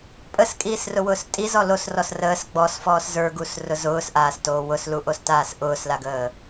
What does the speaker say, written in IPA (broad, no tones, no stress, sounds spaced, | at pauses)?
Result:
pʼ ə s kʼ iː s r ʊ w ʊː s tʼ i z ɔ l o s r ɔ s r əː s ɡ͡b ɔ s f ɔː s z ə˞ ɡ u s r ʊ z ʊː s ʔ aː s t oː w ʊ s l u ʔ o s t aː s ʔ ʊː s l a ɡ əː